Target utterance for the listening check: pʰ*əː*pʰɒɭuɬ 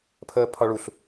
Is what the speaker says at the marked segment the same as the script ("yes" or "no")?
yes